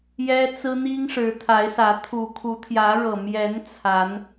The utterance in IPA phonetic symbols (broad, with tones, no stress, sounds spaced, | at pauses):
j ɛ˦ t͡s ɹ̩˦ n̪ i˦ ŋ ʂ ɻ̩˨˦ t̪ʰ a˨˦ ɪ̯ s ä˨˦ t̪ʰ u˨˩ kʰ u˨˦ t̪ʰ j ä˨˦ ɻ ɤ˨˩ m j ɛ˨˦ n t͡sʰ a˨˦ n